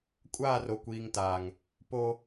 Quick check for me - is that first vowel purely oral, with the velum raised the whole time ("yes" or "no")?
yes